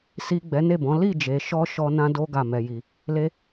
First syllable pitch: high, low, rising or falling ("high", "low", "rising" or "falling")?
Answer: low